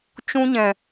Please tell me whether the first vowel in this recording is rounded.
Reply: yes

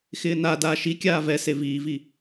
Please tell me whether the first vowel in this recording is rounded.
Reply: no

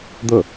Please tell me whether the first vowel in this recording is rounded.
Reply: yes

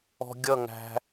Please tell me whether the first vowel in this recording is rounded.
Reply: yes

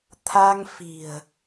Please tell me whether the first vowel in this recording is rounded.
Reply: no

